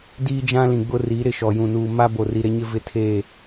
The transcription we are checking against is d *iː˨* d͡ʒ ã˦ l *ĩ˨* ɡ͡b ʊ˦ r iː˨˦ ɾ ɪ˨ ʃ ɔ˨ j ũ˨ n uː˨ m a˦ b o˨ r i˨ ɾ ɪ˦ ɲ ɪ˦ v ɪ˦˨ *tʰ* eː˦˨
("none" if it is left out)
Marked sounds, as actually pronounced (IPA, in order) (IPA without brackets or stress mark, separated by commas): iː˦, ĩ˨, tʰ